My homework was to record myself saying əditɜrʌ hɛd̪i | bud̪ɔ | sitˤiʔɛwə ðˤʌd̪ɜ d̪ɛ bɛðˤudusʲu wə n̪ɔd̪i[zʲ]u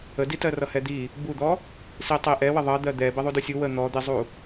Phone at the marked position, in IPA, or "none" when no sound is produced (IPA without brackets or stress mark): zˤ